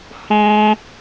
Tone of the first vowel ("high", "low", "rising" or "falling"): high